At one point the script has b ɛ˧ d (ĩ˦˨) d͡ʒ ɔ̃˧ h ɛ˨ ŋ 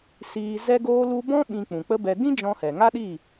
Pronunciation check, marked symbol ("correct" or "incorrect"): incorrect